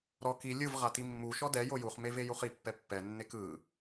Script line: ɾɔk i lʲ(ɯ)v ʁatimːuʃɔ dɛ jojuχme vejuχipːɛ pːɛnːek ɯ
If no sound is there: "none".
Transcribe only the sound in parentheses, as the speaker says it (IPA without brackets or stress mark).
ɯ